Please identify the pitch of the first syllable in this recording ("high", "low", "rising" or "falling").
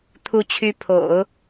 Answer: rising